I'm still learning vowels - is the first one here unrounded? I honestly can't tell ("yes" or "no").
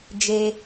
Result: yes